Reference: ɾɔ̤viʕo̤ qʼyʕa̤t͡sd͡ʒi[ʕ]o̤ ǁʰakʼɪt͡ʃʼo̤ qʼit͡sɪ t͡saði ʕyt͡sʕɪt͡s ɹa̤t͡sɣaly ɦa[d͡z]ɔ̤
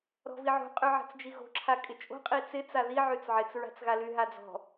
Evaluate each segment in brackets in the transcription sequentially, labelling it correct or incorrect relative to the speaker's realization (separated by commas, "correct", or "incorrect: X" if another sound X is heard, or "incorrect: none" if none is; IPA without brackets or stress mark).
incorrect: ɣ, correct